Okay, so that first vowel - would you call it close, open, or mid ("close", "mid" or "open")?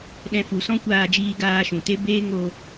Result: mid